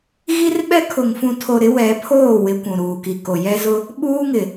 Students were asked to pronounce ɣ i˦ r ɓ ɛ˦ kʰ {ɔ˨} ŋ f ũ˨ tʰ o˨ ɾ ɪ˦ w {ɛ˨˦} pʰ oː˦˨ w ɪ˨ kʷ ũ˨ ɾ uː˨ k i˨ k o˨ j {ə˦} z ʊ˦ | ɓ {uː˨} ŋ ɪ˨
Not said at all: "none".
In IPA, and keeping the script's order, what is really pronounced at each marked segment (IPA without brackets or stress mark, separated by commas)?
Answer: ʊ˨, ɛ˨˦, ɛ˦, uː˦